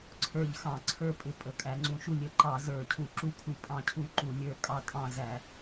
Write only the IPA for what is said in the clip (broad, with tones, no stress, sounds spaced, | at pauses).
ǀʰ ə˞˦˨ ʎ x ɑ̃˧˩˧ ǀʰ ə˞˦˨ pʼ ɪ˧˩˧ pʼ ə˧˩˧ kʼ æ˧˩˧ ŋ͡ǀ ũ˧˩˧ ʃ u˦˨ lʲ ə˧˩˧ ǃ ɑ˧˩˧ z ə˞˧˩˧ cʰ u˧˩˧ ǁ u˦˨ kʰ u˧˩˧ pʼ ɑ̃˦˨ cʰ u˦˨ ǃ u˧˩˧ lʲ ə˞˦˨ kʼ ɑ˦˨ tʼ ɑ̃˦˨ z æ˧˩˧